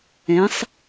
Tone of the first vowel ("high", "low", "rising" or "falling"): rising